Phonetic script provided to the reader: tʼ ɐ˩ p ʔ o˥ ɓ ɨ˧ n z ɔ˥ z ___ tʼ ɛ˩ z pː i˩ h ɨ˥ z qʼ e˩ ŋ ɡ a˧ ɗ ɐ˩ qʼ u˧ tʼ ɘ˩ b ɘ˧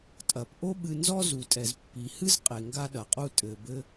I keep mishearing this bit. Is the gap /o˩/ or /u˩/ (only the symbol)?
u˩